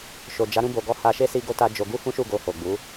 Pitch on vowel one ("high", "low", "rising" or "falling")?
low